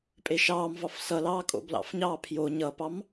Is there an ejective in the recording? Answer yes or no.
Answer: yes